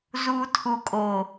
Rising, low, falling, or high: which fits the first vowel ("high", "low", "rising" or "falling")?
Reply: low